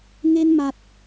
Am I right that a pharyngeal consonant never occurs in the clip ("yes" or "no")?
yes